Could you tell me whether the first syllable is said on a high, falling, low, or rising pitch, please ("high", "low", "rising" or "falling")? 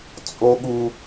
high